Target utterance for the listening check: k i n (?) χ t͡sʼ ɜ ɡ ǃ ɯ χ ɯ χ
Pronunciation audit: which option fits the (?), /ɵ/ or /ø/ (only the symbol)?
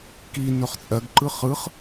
ɵ